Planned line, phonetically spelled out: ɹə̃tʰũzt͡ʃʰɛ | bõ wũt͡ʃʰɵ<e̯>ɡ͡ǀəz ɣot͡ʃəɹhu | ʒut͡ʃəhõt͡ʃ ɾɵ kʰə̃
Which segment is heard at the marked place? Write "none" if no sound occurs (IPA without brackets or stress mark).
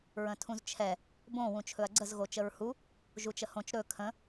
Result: ɐ̯